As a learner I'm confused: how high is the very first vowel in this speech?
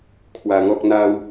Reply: low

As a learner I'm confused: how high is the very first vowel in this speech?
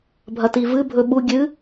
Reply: low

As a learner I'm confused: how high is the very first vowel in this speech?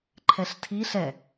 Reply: mid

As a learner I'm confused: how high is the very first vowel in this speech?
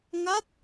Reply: low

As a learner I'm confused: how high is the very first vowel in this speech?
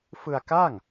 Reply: high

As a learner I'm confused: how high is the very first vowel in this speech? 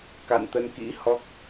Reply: low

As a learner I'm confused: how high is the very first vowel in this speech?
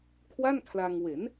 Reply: low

